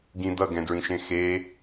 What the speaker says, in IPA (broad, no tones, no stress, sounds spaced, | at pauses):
ɡ ĩ d̪ ʌ ɡ ɛ̃ d ɹ ĩ ʃ ẽ x e